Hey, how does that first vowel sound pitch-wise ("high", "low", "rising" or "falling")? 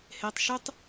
high